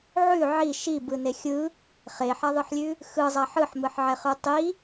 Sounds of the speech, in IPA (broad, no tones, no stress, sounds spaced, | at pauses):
ʕ ʉ ʕ i ʃ i b ɯ n e xʲ ɯ | χ e ħ a ðˤ ɯ ħ lʲ ʉ | x ɯ zˤ a ħ ɯ ħ m ɯ ħ ʕ ɛ χ ʉ tˤ i